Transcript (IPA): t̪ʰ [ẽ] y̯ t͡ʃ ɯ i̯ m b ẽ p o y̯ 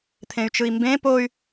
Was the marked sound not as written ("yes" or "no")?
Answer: no